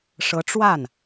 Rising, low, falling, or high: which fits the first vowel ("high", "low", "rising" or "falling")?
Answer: rising